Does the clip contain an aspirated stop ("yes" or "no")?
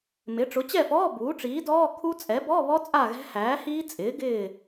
yes